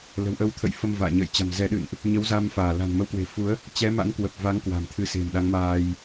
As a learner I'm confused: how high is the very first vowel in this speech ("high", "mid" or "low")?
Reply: mid